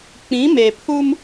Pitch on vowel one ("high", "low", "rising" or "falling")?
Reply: rising